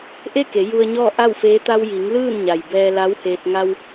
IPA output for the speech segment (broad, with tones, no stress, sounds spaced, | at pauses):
ʔ e˥˨ k e˩˧ j u˧ ə̯ ɲ ɔː˥˨ ʔ a˥˨ w f eː˧˥ t̪ a˧ w j i˩˧ ŋ l ɯː˥˨ n ɲ a˩ j b ɛː˧ l a˧˥ w h eː˧ t̚ ŋ a˧ w